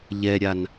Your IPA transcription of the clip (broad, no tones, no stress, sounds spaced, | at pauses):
ʎ ɛ ɾʲ a n